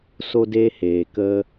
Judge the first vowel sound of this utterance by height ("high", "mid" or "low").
mid